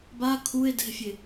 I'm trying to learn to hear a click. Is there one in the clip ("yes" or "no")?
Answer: no